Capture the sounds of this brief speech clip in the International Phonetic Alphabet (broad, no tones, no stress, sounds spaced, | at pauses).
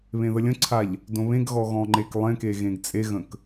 β ẽ ð ə lʲ ə̃ ǀʰ a ʎ | d õ β ẽ ɡ ɣ ɔ ɣ ɔ̃ ŋ͡ǃ e k lˠ ẽ k e ɣ ẽ ɡ t͡sʼ e ɣ ə̃ k